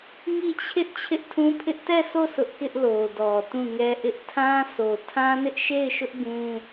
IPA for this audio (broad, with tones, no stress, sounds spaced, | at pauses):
ŋ i˦˨ t͡ɕʰ ɪ˦ ʔ t͡ɕʰ ɪ˦ ʔ tʰ ũ˦ pʰ ɪ˦ ʔ t ɛ˦˨ sʰ o˦˨ s ʊ˦ ʔ k ɪ˦ ʔ l o˨ d ɔ˨ t ũ˦˨ ŋ ɛ˦ ʔ ɪ˦ ʔ tʰ ã˦ s o˨ tʰ ã˦ n ɪ˦ ʔ ʃ e˦˨ ɪ̯ ʃ ʊ˦ ʔ ɡ ũ˦